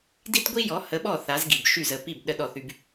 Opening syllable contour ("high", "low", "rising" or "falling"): high